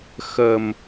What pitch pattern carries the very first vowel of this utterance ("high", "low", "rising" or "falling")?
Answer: low